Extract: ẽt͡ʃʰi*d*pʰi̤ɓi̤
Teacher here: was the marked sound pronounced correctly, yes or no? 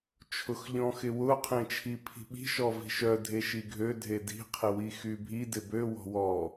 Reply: no